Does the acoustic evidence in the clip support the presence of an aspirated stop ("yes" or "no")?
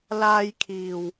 yes